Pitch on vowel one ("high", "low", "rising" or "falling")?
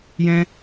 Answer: high